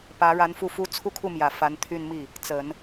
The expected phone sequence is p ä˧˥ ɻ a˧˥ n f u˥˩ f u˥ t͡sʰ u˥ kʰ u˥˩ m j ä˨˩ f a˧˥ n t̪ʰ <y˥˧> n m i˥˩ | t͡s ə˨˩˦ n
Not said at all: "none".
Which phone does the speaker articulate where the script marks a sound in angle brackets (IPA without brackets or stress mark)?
y˥˧